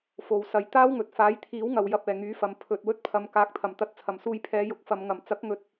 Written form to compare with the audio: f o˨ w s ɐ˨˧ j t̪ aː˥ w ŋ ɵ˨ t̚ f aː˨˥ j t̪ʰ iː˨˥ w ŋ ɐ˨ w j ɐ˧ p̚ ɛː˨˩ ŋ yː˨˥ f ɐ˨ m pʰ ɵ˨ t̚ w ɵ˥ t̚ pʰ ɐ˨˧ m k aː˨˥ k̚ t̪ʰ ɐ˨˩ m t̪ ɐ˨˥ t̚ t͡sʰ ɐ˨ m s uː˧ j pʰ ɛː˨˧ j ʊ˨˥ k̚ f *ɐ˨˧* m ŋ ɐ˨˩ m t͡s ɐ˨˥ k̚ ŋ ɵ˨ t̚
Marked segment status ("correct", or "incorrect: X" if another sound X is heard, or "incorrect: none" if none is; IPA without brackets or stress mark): correct